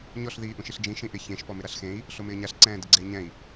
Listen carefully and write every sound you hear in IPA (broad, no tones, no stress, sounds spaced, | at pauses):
ɲ ɔ ɬ ð iː ʔ ũ ʃ i ɬ d͡ʒ ĩ ʃ ĩ ʔ ɪ ç ẽ ʃ p ɔ m ɪ ɾ a ɬ x ẽ i̯ | ɬ o m ɪː ɲ a ɬ ǀ ɛ̃ː d ɪ ɡ͡ǀ e i̯ ɲ ɛ̃ i̯